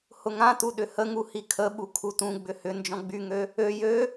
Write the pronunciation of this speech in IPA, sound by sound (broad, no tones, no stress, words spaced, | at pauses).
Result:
hʊŋãtu ɗʏhəŋu hikʰəɓu kʰutũɡ͡bʏ hʏ nd͡ʒɔ̃ɡ͡byŋø | ø jø